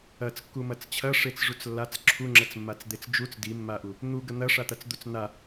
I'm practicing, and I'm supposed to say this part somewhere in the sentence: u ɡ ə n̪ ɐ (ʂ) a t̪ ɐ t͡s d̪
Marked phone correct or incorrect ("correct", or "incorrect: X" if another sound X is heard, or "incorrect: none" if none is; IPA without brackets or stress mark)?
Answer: correct